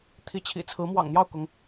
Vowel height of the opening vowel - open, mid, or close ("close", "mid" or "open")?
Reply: close